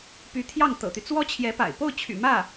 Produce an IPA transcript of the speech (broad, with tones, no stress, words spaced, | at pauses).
py˧˥t̪ʰjɑ˥˩ŋ t̪ɤ̰˨˩t̪y˦ t͡swɔ˥t͡ɕʰjɛ˧˥pa̰˨˩ɪ̯ po˥˩ʊ̯t͡ɕʰy̰˨˩ mä˥˩